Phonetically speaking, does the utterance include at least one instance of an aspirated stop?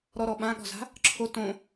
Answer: yes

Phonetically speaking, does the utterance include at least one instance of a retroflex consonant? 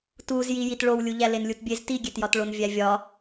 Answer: yes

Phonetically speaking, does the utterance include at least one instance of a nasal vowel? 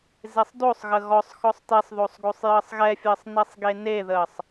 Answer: no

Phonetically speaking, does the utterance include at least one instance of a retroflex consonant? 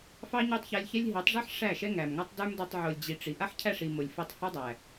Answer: yes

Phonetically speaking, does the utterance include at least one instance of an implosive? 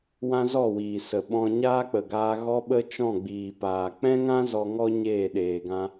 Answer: yes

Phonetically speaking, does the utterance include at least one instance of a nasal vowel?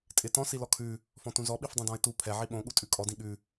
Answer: yes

